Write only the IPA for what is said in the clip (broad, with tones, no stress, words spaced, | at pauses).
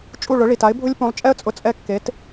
t͡ʃʼu˥˩ɭʊ˩˥ ɭi˩t a˩˥ɪ̯ bʱʊ˥lʲ pũ˩˥lˠt͡ʃʼɛ˥ə̯ t͡sʼʊ˧t͡sʼɛ˥˩kːe˩˥t